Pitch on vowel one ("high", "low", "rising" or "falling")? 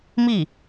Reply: falling